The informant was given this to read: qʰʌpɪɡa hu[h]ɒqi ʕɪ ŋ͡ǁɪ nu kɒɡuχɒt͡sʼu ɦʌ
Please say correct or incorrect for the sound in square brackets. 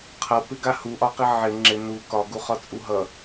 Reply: incorrect